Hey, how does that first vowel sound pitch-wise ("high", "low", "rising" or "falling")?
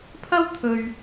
high